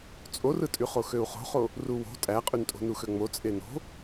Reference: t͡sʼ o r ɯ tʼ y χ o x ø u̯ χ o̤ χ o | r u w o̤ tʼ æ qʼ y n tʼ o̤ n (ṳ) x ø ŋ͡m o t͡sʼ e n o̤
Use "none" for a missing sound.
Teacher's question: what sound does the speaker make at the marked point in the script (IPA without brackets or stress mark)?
u